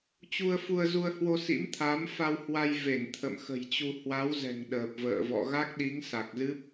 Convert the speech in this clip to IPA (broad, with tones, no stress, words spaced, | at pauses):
t͡ɕu˧ə̯fu˧ə̯zu˧ə̯hwo˧ sḭ˧˥mt̪ʰa˨˦m fa˧whwa˧jve˧˩n t̪ʰə̰˧˨mxə̤˨˩jt͡ɕu˧ hwa˨˦wzɛ̤˨˩ŋ ɗəː˨˩p̚və̰ː˧˨vɔ̰˧˨ ɣa˦˥k̚ɗi˨˦ŋ sa˨˩k̚zɨ˦˥p̚